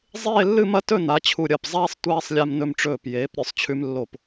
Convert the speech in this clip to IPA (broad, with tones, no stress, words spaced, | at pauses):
zˤeː˥˧lːɨ˥˧mɐ˥ tɵ˥˧na˩˧t͡ɕʰu˧˩ ɾʲɐ˧˩p zˤaː˥sˤ tʷaː˧sˤ lʲa˧m nɵ˧mʈ͡ʂɵː˧˩pjeː˩˧p ɾʲɵ˧˩sˤt͡ɕʰʉ˧mlːo˧˩p